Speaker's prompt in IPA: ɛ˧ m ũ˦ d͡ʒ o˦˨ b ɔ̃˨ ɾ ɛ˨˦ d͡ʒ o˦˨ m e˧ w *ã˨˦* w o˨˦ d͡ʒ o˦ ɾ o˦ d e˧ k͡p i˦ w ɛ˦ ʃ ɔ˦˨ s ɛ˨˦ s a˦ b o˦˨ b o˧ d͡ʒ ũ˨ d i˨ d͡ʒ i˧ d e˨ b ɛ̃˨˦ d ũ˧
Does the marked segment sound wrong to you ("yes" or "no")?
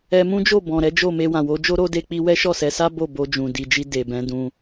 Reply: yes